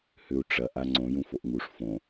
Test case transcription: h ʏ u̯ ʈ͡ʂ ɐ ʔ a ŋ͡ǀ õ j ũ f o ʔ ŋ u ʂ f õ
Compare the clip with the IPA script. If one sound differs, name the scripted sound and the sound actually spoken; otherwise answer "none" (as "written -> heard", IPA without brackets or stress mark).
none